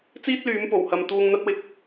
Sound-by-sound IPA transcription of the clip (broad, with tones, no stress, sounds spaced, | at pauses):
t͡s iː˥ t̚ l yː˨˧ m p o˨˩ w h ɐ˨ m t̪ uː˧ ŋ n̪ ɐ˥ t̚ w ɪ˧ k̚